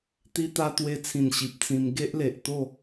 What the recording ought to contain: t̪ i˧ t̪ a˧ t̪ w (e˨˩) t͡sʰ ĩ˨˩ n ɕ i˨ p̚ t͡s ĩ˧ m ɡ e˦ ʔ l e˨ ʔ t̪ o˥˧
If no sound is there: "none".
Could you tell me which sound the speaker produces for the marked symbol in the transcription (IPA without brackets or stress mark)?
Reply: e˧